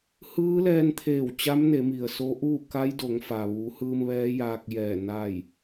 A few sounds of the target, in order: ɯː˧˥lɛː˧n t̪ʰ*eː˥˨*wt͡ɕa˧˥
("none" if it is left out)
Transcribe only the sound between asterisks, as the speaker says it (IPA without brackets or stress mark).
eː˧˩